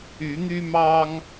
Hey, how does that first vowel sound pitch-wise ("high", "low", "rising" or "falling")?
rising